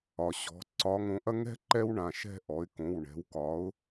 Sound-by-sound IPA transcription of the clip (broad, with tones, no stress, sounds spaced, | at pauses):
ɒ˩ ɕ ɔ̤˩˧ ǀ ɒ˨˥ ŋ õ˩˧ ʔ ɐ˦ ŋ ɛ̤˥˨ ǃ ɛ˦ w ɳ ã˩˧˩ ʃ ɛ̤˥˨ ʔ ɔ˩˧ ɪ̯ k õ˩˧˩ w ɳ ɛ̤˨˥ w k ɒ˨˥ ʊ̯